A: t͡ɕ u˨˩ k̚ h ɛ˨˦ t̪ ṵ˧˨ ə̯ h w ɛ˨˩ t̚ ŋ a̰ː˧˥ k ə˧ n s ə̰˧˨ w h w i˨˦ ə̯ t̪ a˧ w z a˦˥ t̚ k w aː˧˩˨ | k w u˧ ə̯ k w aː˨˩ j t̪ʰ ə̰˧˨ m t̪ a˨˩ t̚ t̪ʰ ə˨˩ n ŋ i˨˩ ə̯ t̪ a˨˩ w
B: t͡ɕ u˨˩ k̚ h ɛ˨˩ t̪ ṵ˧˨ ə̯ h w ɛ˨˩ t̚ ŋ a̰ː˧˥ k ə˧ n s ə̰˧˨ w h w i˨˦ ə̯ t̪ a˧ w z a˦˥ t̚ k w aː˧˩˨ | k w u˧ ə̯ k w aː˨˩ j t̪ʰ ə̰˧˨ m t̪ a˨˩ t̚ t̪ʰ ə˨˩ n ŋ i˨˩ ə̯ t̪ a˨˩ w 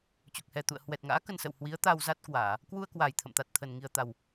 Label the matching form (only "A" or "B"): B